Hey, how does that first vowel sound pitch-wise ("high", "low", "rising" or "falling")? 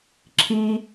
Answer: high